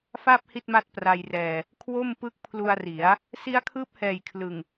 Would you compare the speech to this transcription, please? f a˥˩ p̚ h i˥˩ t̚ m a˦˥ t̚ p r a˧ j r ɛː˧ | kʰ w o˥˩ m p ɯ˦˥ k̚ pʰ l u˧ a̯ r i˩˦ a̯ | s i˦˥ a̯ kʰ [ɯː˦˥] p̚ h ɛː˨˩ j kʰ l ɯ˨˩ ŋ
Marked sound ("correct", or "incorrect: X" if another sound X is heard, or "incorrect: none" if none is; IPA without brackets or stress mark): correct